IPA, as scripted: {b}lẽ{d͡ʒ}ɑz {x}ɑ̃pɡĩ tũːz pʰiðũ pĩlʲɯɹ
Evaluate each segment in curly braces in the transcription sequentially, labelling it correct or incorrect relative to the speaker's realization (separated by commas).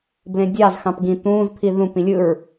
correct, incorrect, correct